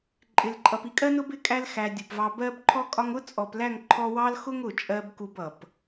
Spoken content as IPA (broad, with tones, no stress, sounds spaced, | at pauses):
ǃʼ ɪ˨ l ǃʼ ʌ˨ p i˧ kʼ ɜ˦ n ʊ˦ b ɪ˦˨ kʼ æ˧ l x æ˨ dʲ u˨ p v ɑ˧ b ɜ˧ b ǃʰ ɔ˧ kʼ ɒ˧ ŋ ʊ˦ t͡sʼ ɔ˨ p l æ˦˨ ŋ ǃʰ ɔ˧ w ɑ˦ l x ʊ˦ ŋ ʊ˨ t͡ʃʼ ɜ˧ b k u˧ b ʌ˨ p